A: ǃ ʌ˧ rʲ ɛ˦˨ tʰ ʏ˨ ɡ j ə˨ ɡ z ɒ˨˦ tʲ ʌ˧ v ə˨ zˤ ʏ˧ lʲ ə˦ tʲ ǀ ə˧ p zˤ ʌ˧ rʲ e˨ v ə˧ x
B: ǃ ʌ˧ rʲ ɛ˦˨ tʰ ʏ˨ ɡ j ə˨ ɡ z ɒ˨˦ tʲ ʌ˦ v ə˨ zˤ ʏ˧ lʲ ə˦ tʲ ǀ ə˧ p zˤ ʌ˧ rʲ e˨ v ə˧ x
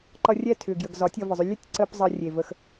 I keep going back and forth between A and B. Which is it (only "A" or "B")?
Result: A